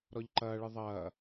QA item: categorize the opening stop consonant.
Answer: click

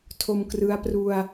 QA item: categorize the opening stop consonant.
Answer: aspirated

